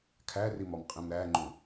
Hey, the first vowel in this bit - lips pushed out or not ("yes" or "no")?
no